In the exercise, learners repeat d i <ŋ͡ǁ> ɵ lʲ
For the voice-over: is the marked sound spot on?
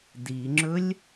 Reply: yes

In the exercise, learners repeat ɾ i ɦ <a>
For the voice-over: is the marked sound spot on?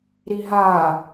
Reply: yes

